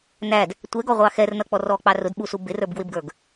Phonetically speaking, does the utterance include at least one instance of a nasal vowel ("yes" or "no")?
no